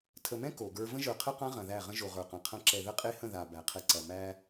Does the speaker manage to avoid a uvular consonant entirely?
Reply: no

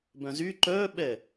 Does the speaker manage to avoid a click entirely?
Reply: no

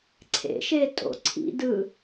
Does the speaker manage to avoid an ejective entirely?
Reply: no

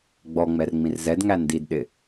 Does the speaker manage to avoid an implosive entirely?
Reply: no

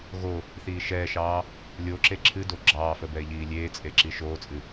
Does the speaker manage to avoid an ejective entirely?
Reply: no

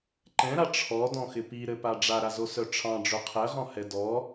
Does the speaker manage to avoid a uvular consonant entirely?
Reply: no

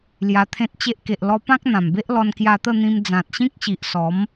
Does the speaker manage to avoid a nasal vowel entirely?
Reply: no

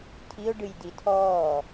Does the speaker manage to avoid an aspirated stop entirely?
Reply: no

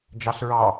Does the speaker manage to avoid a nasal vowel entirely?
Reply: yes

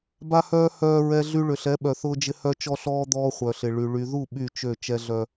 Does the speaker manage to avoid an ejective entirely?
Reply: yes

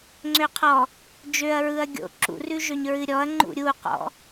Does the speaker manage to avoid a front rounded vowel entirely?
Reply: no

